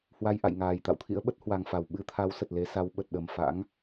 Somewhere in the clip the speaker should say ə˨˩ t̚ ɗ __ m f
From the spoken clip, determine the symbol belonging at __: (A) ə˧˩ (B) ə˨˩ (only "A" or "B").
B